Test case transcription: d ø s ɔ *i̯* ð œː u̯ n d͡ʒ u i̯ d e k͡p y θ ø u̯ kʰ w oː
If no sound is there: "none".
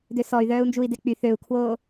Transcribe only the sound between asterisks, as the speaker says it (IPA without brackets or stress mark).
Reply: y̯